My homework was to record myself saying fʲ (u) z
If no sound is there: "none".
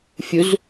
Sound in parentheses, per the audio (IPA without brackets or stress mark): u